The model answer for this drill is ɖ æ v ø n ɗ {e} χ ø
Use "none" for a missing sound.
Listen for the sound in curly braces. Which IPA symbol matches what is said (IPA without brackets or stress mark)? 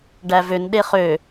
e